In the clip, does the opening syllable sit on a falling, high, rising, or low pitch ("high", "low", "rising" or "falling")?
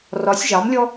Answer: rising